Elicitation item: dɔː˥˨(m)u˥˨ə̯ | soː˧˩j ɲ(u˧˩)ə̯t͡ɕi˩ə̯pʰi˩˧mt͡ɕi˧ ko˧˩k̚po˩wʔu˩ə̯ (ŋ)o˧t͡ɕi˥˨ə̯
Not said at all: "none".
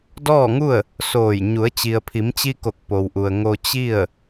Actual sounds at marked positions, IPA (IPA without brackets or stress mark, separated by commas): ŋ, u˩˧, ŋ